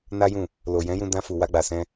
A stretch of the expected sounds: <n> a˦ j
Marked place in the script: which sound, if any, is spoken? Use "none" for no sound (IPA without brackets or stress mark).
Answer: n